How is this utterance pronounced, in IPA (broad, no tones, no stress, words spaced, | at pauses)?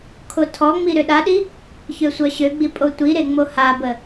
kʰotʰɔŋ͡mi ɾøɗaɗi | çøsʷœɕøɡ͡bi pʼotʷiɾe ŋ͡mohabə